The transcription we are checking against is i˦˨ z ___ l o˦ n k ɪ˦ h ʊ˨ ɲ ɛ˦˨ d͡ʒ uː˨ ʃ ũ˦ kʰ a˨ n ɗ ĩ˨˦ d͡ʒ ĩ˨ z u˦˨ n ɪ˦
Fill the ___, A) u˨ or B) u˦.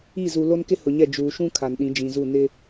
A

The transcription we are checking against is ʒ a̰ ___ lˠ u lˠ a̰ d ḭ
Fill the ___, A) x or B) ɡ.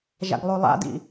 B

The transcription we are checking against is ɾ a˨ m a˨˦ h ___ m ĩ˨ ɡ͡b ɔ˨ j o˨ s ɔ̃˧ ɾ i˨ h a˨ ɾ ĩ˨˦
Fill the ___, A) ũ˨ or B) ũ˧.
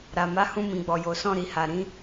B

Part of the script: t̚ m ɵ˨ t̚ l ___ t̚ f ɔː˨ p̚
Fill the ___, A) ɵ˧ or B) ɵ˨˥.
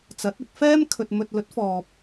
B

